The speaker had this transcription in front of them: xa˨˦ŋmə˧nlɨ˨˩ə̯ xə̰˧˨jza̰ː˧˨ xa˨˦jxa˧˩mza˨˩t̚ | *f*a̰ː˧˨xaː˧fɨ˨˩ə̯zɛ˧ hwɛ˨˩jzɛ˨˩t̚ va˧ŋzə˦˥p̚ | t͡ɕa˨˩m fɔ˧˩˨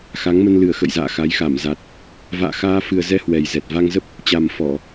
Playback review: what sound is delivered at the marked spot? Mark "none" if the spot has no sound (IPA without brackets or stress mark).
v